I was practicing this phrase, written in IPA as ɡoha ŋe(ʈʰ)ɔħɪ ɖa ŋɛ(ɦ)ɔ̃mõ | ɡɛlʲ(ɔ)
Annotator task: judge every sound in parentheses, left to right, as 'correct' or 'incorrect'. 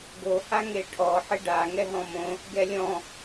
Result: correct, correct, incorrect: ɔ̃

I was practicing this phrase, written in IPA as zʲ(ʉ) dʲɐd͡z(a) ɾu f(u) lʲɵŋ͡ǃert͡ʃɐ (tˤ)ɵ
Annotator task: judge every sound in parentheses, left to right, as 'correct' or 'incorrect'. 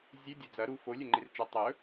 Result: correct, incorrect: ɐ, incorrect: o, correct

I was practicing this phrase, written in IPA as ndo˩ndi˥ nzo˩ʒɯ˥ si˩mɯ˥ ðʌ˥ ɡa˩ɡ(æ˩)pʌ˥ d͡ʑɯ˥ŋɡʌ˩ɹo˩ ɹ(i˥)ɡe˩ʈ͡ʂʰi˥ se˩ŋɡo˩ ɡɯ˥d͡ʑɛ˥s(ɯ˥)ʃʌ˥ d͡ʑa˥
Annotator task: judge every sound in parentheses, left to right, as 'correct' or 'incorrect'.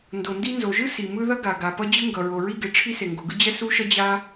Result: incorrect: a˩, correct, incorrect: u˥

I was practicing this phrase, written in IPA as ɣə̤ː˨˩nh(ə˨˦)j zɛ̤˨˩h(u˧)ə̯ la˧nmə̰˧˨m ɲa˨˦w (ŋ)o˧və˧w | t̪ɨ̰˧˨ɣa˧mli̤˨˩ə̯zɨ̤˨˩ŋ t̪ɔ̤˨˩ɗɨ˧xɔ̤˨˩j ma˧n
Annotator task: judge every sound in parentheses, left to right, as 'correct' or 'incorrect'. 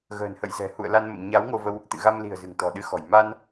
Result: incorrect: ə̰˧˨, incorrect: ṵ˧˨, correct

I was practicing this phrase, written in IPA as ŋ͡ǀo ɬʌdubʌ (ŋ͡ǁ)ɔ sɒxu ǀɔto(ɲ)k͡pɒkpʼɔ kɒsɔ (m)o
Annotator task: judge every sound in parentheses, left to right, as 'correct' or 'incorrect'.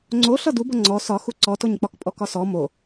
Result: incorrect: ŋ͡ǀ, correct, correct

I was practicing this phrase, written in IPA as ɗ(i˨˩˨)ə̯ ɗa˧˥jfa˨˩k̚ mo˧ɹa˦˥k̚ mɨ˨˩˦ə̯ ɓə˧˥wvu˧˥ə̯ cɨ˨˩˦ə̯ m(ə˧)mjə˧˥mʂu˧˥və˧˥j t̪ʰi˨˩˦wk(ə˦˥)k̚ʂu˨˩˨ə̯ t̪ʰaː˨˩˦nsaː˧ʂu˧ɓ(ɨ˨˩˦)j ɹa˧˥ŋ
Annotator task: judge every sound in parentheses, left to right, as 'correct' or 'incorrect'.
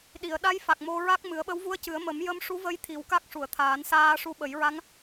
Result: correct, incorrect: ə˨˩˦, incorrect: a˦˥, incorrect: ə˨˩˦

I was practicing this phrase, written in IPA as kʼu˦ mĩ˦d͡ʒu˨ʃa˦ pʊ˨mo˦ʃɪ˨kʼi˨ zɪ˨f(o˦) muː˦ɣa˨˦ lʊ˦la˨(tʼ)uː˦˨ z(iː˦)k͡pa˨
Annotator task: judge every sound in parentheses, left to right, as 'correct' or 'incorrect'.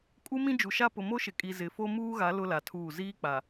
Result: correct, incorrect: tʰ, correct

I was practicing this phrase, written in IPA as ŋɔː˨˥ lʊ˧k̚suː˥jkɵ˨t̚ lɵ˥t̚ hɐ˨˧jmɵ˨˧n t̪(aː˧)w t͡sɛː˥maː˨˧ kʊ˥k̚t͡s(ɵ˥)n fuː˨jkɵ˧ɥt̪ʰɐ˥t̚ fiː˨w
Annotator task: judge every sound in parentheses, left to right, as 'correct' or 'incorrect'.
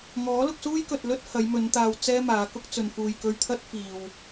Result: incorrect: aː˨, incorrect: ɵ˨

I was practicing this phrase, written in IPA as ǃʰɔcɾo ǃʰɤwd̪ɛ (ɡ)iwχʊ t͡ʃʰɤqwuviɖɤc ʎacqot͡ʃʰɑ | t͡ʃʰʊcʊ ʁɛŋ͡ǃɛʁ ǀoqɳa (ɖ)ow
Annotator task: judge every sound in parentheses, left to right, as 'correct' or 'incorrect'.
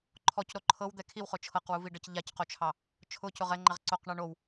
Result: incorrect: kʰ, incorrect: ɳ

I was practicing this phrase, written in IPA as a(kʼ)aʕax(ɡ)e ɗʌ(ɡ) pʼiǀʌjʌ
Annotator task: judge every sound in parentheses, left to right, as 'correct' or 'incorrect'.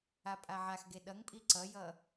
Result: incorrect: pʼ, correct, incorrect: ŋ

